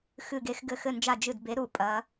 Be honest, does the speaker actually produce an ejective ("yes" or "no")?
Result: yes